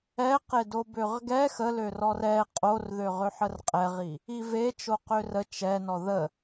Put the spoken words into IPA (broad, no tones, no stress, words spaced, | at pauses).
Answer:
ɛqedo bøʁɡɛ xəlø rɔrɛ qʼorðøʁøħər qʼɛʁi | ive t͡ʃoqørə t͡ʃɛ nɔðə